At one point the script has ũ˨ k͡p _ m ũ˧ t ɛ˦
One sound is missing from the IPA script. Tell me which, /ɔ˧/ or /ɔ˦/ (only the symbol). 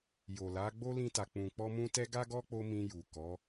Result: ɔ˧